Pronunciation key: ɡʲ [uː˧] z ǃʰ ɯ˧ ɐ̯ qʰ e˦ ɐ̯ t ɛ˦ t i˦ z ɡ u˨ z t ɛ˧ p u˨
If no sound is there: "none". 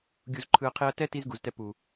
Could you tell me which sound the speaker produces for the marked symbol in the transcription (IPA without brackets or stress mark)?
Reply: u˧